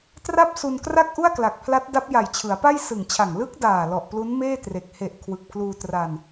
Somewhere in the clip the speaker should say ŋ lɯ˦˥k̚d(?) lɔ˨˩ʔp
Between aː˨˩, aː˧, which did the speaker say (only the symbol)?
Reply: aː˨˩